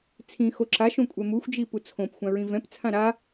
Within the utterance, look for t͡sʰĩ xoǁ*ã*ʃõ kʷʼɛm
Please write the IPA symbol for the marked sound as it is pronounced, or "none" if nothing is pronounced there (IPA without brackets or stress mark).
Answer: a